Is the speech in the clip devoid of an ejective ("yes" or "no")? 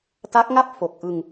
yes